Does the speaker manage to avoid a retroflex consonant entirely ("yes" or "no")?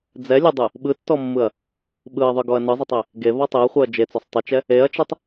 yes